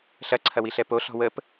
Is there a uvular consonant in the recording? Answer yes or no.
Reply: no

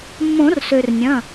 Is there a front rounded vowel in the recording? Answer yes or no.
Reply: yes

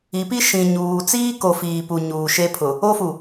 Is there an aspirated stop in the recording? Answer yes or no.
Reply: yes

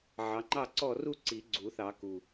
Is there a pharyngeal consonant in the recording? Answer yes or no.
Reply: yes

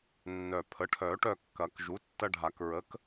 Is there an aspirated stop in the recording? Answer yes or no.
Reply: yes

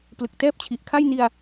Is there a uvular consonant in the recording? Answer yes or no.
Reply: no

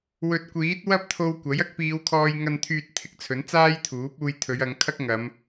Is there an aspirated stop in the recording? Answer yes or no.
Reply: yes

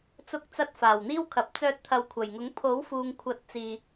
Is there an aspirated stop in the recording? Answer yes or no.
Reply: yes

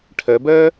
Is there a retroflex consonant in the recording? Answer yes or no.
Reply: yes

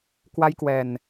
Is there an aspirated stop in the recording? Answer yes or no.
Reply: no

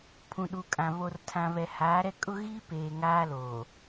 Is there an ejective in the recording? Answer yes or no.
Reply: yes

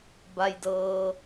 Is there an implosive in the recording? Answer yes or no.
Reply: no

